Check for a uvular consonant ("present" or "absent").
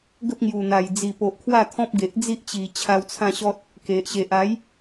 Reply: absent